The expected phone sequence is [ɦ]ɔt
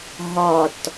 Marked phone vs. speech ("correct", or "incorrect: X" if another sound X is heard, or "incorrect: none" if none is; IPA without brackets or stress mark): correct